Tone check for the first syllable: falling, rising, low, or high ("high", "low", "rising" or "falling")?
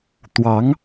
rising